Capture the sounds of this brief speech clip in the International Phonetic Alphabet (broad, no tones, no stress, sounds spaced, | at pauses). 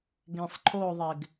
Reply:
ɡ ẽ sˤ ǃʰ o ðˤ e ɡ